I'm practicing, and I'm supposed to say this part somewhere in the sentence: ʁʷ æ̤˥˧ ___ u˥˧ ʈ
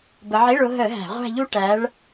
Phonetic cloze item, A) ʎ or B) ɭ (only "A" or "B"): A